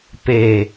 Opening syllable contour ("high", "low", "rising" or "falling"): low